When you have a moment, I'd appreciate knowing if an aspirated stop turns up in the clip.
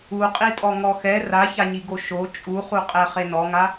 no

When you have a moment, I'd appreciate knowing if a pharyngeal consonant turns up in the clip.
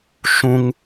no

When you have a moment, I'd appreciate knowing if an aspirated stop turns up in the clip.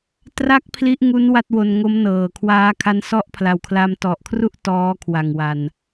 yes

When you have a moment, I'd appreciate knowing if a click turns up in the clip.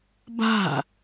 no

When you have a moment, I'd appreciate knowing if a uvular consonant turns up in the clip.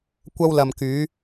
no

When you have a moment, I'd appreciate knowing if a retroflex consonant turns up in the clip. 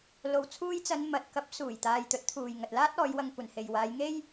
no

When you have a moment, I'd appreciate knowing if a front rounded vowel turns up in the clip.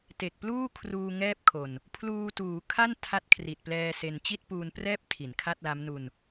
no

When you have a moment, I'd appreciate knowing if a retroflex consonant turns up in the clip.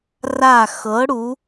yes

